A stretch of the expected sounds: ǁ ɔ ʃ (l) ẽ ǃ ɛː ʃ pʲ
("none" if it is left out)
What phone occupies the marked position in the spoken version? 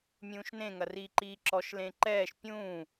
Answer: l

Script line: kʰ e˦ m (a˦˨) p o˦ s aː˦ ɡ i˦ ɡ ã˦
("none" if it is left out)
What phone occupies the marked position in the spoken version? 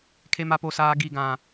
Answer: a˦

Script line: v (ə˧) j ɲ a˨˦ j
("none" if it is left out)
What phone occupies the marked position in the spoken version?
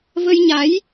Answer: ə˧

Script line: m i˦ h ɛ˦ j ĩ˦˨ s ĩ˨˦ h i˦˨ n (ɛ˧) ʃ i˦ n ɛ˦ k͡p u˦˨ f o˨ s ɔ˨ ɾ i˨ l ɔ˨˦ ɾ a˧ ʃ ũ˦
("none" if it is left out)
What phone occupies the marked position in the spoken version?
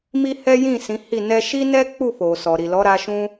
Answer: ɛ˧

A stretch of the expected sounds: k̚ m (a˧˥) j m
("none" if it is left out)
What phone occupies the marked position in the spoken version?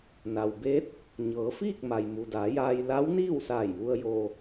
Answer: a˩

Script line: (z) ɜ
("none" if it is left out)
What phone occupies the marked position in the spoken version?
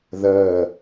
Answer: ð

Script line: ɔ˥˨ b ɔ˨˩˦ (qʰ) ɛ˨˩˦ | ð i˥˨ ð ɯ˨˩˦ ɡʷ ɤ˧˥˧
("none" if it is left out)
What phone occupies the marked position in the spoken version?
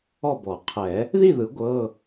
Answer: qʰ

